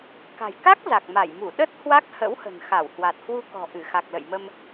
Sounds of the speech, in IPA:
k a̤˨˩ j k a˦˥ k̚ z a˨˩ k̚ m a˧˩ j m u˧˩ ɗ ə˦˥ t̚ h w a˦˥ k̚ h ə̰˧˥ w h ə̤˨˩ n x a˧˩ w h w a˨˩ t̚ h w u˧ k ɔ̤˨˩ ʔ ɨ˧˩ x a˨˩ k̚ l ə̰˧˨ j m ə˧ m

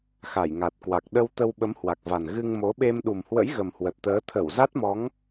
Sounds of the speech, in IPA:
x a˧˩ j ŋ a˨˩ t̚ k w a˨˩ k̚ ɗ ə˧ w t̪ ə˧ w ɓ ə˨˦ m h w a˨˩ k̚ v a˨˩ n ɣ ɨ˧ ŋ m o˨˦ ɓ e˧ m ɗ u˨˩ m h w ə̰˧˥ j ɣ ə˨˩ m h w ə˨˩ t̚ t̪ əː˨˦ t̪ʰ ə˧˩ w z a˦˥ t̚ m ɔ˨˦ ŋ

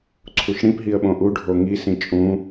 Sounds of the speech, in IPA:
ǀʰ u ʃ ɽ ĩ p ɦ i ə̯ ɓ õ ʔ u ɖʱ o ŋ i s ĩ t͡ʃʼ ũ

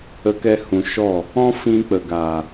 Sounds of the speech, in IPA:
ə˧ k ɛ˧ h ũ˨ ʃ ɔ˦˨ | ɔ̃˦ f ĩ˧ k͡p ə˨ ɡ a˨

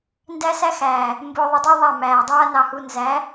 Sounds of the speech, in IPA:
n d æ˦ s æ˦ x æː˨ | m b ʊː˧ ðˤ ə˧ dˤ u˦ ðˤ a˦˨ m æː˨ dˤ aː˦ n ɑ˧ h u˧ n z æ˨˦

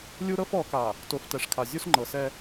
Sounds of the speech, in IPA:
lʲ u˦ ɾ ɤ˦ f ɔ˨˦ k a˨ | t o˨ f t ɛ˨ ʂ kʰ a˨ zʲ u˦ s ŋ͡ǃ ɤ˨ s ɛ˦

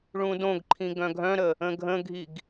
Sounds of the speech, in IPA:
ɭ ũ d õ ɡ ǃʰ ĩ ɡ œ̃ ɡʱ œ̃ ɾ ə | ə̃ ɡʱ ə̃ ɡʱ i ɡ

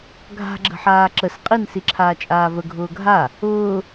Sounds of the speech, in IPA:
ɡʱ a̤ ɡ͡ǁ ə̤ ħ aː ǁ ə s qʼ i n s i ǁʰ aː t͡ʃʼ aː v ə ɡʱ ʊː ɡʱ a | ʊː

